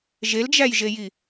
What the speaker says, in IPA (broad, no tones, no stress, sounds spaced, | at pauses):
ʒ e l d͡ʒ æ j ʒ e j i